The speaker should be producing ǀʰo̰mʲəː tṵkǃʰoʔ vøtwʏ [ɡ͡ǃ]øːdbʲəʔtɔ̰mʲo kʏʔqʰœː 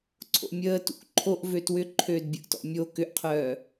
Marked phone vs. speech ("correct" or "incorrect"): incorrect